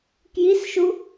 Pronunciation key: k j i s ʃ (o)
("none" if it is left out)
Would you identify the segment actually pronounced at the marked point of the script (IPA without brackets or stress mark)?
u